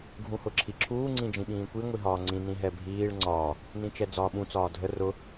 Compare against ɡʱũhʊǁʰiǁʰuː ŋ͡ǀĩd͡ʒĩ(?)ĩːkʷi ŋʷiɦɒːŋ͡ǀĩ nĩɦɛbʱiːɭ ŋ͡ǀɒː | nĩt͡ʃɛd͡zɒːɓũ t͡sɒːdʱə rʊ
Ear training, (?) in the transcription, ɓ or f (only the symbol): ɓ